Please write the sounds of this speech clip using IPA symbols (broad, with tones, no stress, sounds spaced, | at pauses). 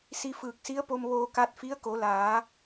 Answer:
s i˧ f ɯː˧˩ k̚ s i˧˥ ə̯ p o˧ m ʋ oː˧ k a˧ t̚ f i˧˥ ə̯ k o˩˧ l aː˩˧